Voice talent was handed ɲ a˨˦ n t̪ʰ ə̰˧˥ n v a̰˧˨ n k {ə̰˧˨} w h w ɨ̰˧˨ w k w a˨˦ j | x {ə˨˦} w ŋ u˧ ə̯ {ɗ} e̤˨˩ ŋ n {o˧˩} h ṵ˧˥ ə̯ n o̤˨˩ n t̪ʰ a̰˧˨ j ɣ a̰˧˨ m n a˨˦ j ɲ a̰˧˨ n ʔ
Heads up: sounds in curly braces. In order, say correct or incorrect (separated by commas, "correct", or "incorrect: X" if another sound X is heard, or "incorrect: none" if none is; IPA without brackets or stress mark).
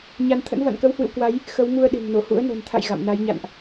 incorrect: ə˨˦, correct, correct, correct